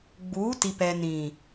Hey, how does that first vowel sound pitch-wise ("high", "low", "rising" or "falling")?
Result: rising